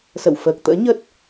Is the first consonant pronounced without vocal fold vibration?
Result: yes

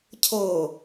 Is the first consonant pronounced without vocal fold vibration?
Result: yes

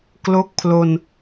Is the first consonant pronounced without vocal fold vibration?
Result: yes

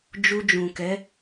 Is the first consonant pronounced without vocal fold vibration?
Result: no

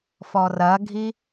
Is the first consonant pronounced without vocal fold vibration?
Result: yes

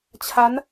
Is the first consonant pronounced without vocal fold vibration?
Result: yes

